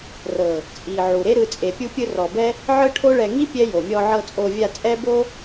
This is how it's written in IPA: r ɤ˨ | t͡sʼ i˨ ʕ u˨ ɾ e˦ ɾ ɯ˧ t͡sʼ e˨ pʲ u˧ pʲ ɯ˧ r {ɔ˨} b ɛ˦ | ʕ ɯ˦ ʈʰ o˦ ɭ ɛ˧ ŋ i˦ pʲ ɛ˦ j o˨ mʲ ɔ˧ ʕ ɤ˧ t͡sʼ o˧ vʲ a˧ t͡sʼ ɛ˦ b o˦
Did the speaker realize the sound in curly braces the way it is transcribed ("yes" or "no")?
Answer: yes